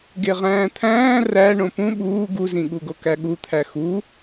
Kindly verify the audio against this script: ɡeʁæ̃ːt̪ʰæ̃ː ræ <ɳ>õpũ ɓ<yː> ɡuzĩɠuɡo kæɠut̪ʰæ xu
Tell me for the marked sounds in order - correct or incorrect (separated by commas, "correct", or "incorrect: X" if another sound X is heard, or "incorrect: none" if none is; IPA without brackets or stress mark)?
correct, incorrect: uː